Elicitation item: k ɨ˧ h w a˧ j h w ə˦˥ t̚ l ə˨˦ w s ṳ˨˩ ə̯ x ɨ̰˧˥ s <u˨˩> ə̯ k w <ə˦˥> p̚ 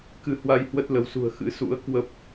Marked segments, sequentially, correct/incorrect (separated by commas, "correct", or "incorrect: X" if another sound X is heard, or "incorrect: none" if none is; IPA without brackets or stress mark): incorrect: ṵ˧˥, correct